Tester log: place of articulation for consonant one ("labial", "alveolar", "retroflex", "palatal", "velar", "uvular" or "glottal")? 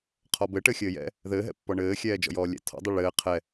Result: uvular